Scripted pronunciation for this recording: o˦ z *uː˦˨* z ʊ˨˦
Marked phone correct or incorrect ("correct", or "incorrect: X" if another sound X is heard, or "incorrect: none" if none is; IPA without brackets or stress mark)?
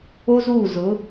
correct